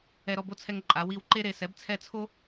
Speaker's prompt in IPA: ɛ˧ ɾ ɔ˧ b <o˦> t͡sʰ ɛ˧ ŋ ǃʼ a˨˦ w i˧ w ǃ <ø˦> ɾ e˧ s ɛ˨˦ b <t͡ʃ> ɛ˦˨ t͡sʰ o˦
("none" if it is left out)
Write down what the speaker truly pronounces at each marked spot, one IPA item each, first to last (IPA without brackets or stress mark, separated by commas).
o˦, e˦, t͡sʰ